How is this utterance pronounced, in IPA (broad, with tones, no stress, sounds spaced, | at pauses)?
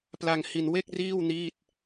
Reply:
p l a˧ ŋ h i˧ n w e˥˩ k̚ r iː˥˩ w n iː˥˩ t̚